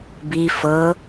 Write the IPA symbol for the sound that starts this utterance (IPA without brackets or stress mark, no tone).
b